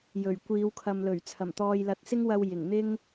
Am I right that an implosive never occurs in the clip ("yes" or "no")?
yes